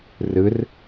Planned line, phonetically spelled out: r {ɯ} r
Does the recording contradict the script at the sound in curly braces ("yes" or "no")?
no